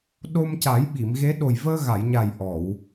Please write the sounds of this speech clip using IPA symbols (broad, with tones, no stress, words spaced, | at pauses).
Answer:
ɗo˧mca˨˩˦j ɓi˨˩˨mɣe˧˥ ɗo˨˩jvəː˧ɣa˨˩˨jɲa˨˩j ʔɔ˨˩˨w